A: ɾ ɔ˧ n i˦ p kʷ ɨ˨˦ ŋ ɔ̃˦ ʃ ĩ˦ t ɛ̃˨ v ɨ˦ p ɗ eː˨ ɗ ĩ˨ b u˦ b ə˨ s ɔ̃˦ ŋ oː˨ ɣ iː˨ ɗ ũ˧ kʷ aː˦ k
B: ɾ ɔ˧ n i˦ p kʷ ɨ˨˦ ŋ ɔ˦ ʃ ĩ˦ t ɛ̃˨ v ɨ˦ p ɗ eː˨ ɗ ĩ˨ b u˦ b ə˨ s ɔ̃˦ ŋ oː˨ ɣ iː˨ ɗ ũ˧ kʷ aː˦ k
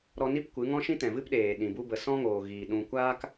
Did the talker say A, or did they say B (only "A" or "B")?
A